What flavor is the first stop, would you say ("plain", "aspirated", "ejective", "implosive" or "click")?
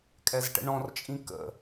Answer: ejective